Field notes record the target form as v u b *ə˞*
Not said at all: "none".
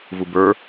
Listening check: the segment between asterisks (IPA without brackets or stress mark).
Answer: ə˞